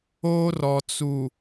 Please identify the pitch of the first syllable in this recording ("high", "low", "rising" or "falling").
high